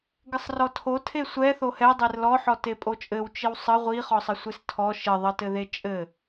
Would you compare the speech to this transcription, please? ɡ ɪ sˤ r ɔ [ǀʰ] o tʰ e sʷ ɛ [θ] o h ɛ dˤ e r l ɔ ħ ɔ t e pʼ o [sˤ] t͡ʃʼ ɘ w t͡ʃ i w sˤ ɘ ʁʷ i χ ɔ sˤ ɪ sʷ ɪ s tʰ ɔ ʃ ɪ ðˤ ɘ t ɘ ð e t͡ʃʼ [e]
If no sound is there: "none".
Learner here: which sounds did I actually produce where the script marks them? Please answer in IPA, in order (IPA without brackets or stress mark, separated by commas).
tʰ, θ, none, ɘ